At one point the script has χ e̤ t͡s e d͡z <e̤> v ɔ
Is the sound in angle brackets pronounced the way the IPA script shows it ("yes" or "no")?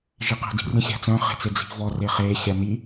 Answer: no